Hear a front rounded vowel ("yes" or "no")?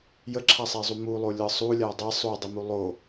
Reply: no